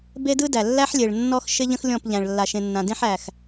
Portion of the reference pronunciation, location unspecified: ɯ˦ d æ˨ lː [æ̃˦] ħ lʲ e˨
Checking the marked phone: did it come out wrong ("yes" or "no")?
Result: yes